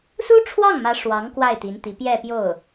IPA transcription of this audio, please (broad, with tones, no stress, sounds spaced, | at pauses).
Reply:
s u˥ ʈ͡ʂʰ w ɑ˥˩ ŋ m ä˧˥ ʂ w ɑ˧˥ ŋ k w a˥˩ ɪ̯ t̪ i˧˥ n t̪ i˧˥ p j ɛ˥˧ p j o˥˩ ʊ̯